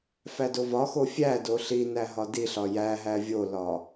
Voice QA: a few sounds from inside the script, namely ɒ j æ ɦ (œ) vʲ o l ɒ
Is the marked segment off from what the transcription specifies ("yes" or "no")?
yes